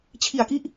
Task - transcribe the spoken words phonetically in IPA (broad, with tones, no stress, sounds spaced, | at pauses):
t͡ɕʰ i˨˩ a̯ k i˦˥ ʔ